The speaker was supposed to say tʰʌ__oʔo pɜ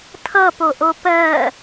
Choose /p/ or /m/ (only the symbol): p